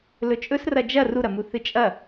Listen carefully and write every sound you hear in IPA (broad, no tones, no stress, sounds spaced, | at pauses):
l ɵ t͡ʃʼ ɵ s r ɐ d͡ʒ ɐ r u ɾ ɐ m u θ ɨ t͡ʃʼ ɐ